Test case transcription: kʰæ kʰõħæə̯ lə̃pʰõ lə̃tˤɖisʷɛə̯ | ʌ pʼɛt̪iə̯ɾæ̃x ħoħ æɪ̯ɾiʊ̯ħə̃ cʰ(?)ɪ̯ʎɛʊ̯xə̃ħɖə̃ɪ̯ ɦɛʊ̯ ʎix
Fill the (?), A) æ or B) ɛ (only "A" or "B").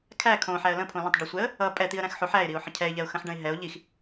B